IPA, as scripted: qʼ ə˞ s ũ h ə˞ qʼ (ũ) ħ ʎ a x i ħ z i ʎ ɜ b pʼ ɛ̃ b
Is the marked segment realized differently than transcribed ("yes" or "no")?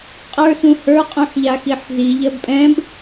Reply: no